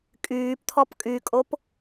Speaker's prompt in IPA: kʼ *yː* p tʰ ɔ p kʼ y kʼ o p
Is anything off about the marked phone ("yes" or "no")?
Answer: no